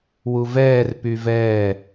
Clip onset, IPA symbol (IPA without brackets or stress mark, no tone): w